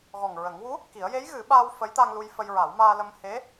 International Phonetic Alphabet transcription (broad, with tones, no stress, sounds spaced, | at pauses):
ɣ ɔ˨˩ ŋ ɹ ə˨˩˦ ŋ w u˧˥ | k i˨˩˦ ə̯ j e˧˥ j ɣ ɨ˨˩˦ ɓ aː˧ w f ə˧˥ j t̪ a˧ ŋ l u˧ j f ə˧ j ɹ a˨˩˦ w m aː˧ l ə˧ m h e˧˥